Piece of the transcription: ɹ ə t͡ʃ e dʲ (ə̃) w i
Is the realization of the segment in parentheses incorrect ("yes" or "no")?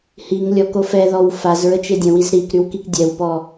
no